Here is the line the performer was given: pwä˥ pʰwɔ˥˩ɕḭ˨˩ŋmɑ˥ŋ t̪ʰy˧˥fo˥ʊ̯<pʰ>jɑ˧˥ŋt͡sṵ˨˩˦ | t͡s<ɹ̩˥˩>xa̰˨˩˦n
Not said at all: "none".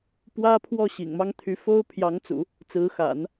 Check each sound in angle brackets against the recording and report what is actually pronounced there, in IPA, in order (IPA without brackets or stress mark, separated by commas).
pʰ, ɹ̩˧˥